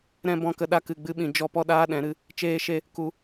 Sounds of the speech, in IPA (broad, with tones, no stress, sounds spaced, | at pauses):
ɾ ɛ̃˧ b ɔ̃˧ k ə˧ ɗ a˧ k ɨ˨ ɡ͡b ɨ˧ ɓ ĩ˨ d͡ʒ ɔ˧ p ɔ˧ ɗ aː˧ ɗ ɛ̃˨˦ ɾ ɨ˦ | t͡ʃ eː˦ ʃ e˦ | k u˧